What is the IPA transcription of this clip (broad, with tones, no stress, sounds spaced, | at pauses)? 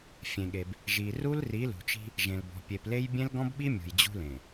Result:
fʲ ẽ˨ ɠ e˨ b | ʒ i˨ r u˦ l r i˨˦ l ṳ˨ t͡ʃ i̤˦ | ʒ ẽ˨ l b ɔ̤˨ pʲ e˨ p l e˦ j bʲ ẽ˦ l ɡ ɔ̃˦ b ɓ i˦ mʲ ṳ˨ j d͡ʑ ṳ˦ l ẽ˨